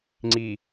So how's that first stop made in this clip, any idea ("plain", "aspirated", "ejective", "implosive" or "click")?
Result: click